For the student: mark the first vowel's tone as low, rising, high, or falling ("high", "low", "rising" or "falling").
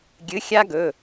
rising